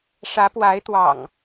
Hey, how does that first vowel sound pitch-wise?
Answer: rising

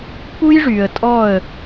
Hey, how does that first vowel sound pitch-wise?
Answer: high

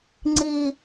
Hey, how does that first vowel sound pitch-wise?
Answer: high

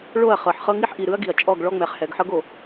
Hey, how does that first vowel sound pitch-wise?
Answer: falling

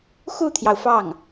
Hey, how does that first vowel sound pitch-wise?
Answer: falling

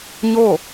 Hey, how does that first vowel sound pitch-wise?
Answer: falling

